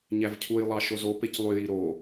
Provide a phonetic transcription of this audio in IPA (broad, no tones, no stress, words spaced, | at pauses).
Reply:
ɲævcʰujlˠɑ ʃozopec lˠyji ɾo